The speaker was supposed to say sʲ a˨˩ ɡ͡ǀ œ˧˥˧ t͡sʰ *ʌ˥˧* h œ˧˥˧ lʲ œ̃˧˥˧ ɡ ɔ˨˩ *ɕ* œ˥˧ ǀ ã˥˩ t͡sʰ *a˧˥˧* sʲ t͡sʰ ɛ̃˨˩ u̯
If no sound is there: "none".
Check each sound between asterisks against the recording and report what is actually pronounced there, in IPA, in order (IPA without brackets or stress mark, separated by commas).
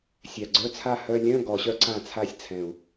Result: a˥˧, ɕ, a˥˩